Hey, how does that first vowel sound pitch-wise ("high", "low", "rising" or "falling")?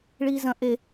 high